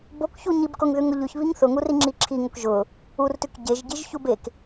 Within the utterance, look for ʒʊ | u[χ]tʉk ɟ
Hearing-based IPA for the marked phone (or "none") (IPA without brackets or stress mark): r